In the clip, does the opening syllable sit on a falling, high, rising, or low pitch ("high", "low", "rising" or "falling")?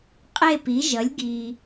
falling